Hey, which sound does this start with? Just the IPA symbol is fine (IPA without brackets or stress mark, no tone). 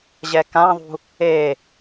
ʑ